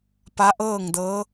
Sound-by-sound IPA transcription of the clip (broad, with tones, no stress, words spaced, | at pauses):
pa˧˥ʔɤː˥˨ŋdɤː˧˥